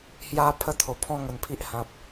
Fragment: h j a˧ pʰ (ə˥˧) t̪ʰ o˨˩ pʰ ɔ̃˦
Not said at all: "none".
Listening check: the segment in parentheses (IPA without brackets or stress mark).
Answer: ə˥˧